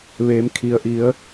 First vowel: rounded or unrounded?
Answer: unrounded